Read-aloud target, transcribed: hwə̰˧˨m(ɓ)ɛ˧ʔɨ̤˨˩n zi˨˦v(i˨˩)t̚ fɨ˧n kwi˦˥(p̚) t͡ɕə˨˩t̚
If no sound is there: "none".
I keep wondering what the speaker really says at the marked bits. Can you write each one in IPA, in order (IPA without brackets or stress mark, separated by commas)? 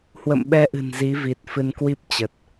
ɓ, i˨˩, p̚